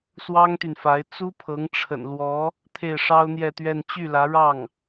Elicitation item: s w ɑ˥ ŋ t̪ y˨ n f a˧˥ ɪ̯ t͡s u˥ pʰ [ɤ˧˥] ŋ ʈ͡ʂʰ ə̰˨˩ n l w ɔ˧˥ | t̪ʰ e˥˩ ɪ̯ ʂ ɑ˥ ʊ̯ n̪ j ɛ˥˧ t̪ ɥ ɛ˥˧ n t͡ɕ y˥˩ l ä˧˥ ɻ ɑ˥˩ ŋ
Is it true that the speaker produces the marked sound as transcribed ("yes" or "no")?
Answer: yes